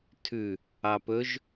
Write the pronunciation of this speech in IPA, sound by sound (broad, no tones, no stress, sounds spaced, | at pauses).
tʰ ʉ | ɑ p ɵ ʒ